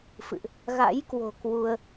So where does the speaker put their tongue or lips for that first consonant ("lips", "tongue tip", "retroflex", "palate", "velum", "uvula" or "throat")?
lips